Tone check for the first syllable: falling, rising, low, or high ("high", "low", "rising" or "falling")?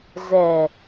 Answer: low